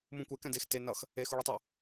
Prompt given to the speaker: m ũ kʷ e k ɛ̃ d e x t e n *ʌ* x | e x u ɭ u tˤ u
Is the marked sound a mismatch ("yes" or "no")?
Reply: no